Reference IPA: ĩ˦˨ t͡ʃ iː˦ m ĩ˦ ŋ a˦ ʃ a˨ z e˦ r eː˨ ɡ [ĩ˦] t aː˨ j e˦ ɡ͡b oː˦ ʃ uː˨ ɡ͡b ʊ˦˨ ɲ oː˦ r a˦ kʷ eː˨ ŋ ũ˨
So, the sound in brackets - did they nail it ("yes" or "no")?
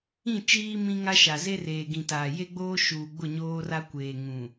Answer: no